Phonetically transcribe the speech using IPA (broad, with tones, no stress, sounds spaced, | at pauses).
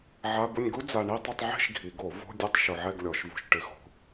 ʕ a˧˥˧ b ʊ˥˧ nʲ ɡ u˥ d͡z a˧ ɳ i˥˧ tˤ ʊ˥˧ tˤ ʕ e̤˥˧ ʃ ɡʱ i˨˩˦ ɡ o˨˩˦ v o̤˧˥˧ dʲ ɛ˥˧ tˤ ʃ ʊ˧ ʕ ɛ˥˧ ɡ lʲ ɔ˨˩˦ ʃ v o̤˧ ʃ ʈ ɪ˨˩˦ x o̤˨˩˦